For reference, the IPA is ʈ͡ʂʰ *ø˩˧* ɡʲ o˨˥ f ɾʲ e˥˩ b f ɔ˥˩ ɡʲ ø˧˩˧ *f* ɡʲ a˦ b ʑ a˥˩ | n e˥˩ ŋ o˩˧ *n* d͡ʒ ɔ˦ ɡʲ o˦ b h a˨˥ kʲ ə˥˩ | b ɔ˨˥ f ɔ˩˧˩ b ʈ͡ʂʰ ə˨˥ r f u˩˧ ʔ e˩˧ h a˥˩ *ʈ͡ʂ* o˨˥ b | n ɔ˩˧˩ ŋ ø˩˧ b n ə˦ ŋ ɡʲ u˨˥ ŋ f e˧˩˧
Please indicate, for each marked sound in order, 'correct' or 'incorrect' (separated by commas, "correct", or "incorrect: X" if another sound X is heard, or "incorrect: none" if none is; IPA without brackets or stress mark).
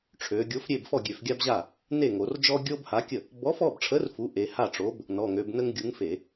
correct, correct, incorrect: r, correct